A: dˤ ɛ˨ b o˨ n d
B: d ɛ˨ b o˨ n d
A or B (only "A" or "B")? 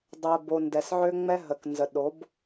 A